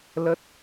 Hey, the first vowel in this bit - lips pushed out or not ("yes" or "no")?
no